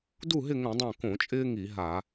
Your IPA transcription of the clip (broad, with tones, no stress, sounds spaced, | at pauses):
d u˥˨ ɦ ɪ˥˨ ŋ õ˧˩˧ dˤ õ˥˨ k õ˧˩˧ t͡ʃʼ ɪː˦ ŋ i˧˩˧ ɦ a˧˩˧